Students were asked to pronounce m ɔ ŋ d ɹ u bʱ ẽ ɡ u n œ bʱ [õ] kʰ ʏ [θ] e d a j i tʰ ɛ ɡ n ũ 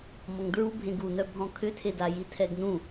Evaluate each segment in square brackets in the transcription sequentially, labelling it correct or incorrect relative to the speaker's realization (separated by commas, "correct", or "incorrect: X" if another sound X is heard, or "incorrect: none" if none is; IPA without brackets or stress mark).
incorrect: ɔ̃, incorrect: tʰ